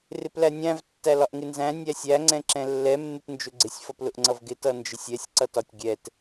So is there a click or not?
yes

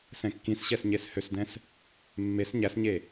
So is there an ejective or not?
no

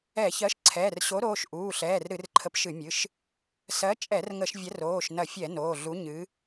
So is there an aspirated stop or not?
yes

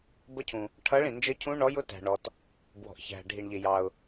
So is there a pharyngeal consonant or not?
no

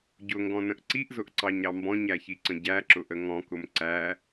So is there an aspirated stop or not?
no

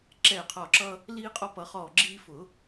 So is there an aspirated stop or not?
yes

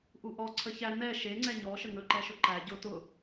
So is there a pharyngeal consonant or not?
no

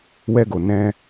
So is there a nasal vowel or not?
yes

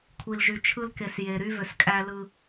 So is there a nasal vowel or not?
no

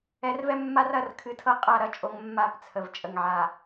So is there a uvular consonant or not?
yes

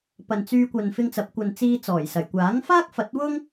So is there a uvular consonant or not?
no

